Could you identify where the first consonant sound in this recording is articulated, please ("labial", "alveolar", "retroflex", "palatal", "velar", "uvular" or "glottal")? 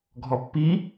velar